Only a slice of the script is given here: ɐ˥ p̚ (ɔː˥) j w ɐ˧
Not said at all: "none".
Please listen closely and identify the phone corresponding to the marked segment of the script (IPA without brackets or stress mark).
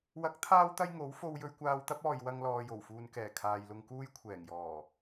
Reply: ɔː˨